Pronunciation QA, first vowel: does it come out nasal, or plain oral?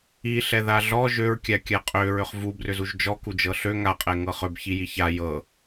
oral